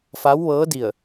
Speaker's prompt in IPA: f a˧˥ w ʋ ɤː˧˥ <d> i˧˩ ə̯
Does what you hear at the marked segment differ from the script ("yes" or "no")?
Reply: no